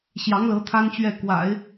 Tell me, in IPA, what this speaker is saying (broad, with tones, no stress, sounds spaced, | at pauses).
ɕ j ɑ˧˥ ŋ l ɤ˧˥ t̪ʰ a˥ n t͡ɕ ɥ ɛ˥˩ k w a̰˨˩˦ ɪ̯